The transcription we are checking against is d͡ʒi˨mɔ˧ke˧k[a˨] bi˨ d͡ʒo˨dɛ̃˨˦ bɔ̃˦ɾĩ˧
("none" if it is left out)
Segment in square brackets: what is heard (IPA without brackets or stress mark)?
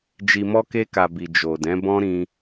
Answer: a˨